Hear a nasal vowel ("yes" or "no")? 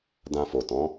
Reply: yes